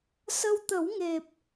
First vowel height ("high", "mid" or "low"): mid